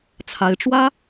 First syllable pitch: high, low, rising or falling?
rising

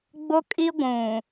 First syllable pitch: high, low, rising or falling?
high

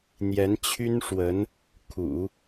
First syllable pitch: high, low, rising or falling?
rising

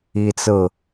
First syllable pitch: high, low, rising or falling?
high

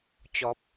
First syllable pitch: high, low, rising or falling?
high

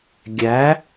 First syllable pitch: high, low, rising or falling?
rising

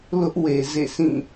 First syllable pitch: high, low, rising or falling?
high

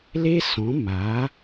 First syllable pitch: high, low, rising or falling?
high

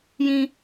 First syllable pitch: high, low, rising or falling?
high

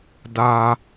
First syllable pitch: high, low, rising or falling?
low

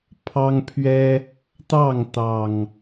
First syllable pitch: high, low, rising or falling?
high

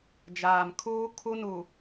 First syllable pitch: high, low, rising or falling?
low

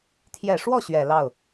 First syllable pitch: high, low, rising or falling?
low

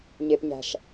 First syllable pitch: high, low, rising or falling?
low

